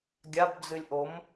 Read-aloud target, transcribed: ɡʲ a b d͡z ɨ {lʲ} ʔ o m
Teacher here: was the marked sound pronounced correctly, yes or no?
yes